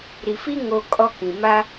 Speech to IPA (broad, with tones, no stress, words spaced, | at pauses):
ɾi˨fi˦ ŋo˨ kʼɔ˦kĩ˨ ma˦